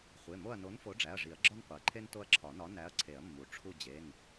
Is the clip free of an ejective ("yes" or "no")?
yes